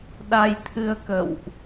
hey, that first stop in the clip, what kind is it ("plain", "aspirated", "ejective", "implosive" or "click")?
implosive